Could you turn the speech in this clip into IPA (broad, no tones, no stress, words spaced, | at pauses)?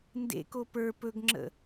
ndḛko pə˞ pɵɡŋ͡ǁə̰